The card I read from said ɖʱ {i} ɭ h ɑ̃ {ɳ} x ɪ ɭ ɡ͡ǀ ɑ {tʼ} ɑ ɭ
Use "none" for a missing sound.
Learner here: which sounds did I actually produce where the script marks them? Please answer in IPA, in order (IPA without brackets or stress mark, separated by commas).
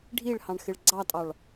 i, ɳ, tʼ